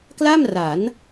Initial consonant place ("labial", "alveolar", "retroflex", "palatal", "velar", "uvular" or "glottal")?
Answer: velar